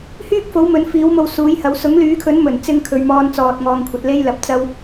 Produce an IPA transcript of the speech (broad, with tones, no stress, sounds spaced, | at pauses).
h yː˥ k̚ f o˨˥ w m ɵ˨˥ n f iː˨˥ w m o˧ w s uː˨˥ j h ɐ˨˥ w s ʊ˨˥ ŋ l yː˨˥ kʰ ɵ˨˥ n m ɵ˨˩ n t͡s ɪ˧ ŋ kʰ ɵ˨ ɥ m ɔː˧ n t͡s ɔː˨ t̚ ŋ ɔː˧ ŋ kʷʰ ɐ˨˥ t̚ l e˥ j l ɐ˨ p̚ t͡s ɐ˥ w